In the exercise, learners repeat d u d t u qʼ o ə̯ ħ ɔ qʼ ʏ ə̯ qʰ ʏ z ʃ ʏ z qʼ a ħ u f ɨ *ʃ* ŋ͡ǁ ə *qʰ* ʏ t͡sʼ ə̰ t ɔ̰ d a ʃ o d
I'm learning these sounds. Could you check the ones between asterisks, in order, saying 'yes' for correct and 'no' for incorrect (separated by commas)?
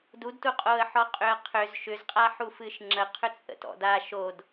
yes, yes